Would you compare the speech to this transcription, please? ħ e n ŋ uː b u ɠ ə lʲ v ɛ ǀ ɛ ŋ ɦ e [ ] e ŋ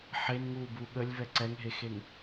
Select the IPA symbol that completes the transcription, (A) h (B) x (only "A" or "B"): B